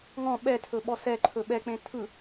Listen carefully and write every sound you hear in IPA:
ŋ ɔ̃ ɓ ɛ tʰ ɵ ɓ ɔ s ɛ ǃʰ ɵ ɓ ɛ k͡p ẽ tʰ ɯ

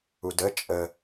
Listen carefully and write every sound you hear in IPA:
u d ə t͡ʃʼ ə

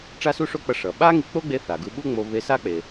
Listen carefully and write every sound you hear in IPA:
ʈ͡ʂ a˥ s u˥ ʂ o˥ k͡p ʌ˧ ʂ ʌ˩ ɓ a˥ ŋ i˧ k͡p o˥ ɡ͡b e˧ θ a˩ ɡ ɯ˧ ɓ u˥ ŋ͡m o˧ β e˧ s a˥ k͡p e˩

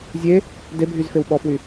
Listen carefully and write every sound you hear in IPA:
zʲ e | d e bʱ y z f e w ɓ ɔ f w y

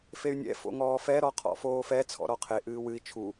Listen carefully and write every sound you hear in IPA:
f e y̯ nʲ ɛ̰ f o̰ ŋ ɔː f ɛ ɾ ɔ qʰ ɔ̰ f oː f ɛ t͡sʰ ɔ̰ ɾ ɔ qʰ e ʔ ɨː w ɨ i̯ t͡ʃʰ u

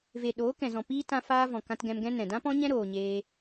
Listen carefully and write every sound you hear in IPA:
v e˨ ɗ oː˨˦ k ɛ̃˨ z ɔ̃˨ p iː˦ t ã˧ f aː˦ v ɔ̃˨ k ã˧ t ɡ ɛ̃˧ m ɡ ɛ̃˦ n ɛ̃˨ d ã˦ p ɔ̃˦ ɲ ɛ̃˦ ɾ oː˧ ɲ eː˦

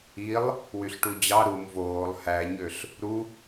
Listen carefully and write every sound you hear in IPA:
i lˠ | w y ɬ ʈ u d͡ʑ ɑ ɾ u m v oː lˠ h æ ɲ ø ɬ | ɾ u

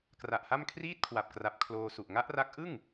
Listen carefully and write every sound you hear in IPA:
k r a˨˩ ʔ h a˥˩ m kʰ r iː˥˩ t̚ kʰ w a˨˩ p̚ k r a˨˩ p̚ kʰ l oː˧ s u˨˩ ʔ ŋ a˦˥ ʔ r a˦˥ k̚ ʔ ɯ˥˩ ŋ

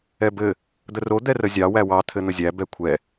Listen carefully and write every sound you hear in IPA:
ɛ b ɘ | d̪ ə r o d̪ ɛ r ə zʲ ɑ w æ w ɑ t̪ʰ ɘ n̪ ə zʲ æ b ɛ kʷʰ ɛ

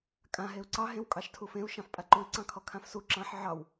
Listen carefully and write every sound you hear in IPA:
kʼ ã ɦ e u̯ ǀ ɑ ɦ ẽ w kʼ ɑ ʃ tʰ u f ẽ u̯ ʃ ɑ̃ f pʼ a ǃ u i̯ ǀ ɑ̃ kʰ ɔ kʰ ã f s u ǁ ɑ̃ ħ ʕ ɑ w

